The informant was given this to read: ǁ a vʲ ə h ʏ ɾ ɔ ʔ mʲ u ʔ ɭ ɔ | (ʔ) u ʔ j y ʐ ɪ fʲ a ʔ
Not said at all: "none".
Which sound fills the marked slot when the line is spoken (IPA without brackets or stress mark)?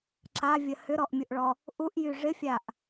ʔ